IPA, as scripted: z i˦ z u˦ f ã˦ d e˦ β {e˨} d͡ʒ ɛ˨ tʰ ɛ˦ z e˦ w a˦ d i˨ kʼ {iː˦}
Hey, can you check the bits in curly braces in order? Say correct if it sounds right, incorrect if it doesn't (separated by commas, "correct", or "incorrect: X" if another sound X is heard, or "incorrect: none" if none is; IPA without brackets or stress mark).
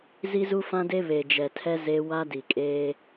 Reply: correct, incorrect: eː˦